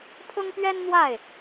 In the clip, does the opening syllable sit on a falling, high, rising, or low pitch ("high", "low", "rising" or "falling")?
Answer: high